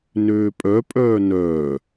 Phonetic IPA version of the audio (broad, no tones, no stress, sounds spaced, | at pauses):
n øː pʼ œ pʼ œː n œ